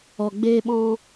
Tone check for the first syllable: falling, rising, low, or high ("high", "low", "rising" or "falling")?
low